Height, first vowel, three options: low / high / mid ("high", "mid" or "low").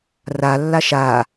low